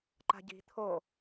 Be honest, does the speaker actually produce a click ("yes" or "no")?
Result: yes